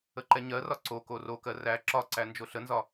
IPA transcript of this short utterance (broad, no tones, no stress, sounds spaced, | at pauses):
ə ǃ ɛ ɲ ɜ r ɒ ǀ o k o r o k ɜ r æ ǁ ɒ ǀ æ n d͡ʒ o ɬ ə n z ɒ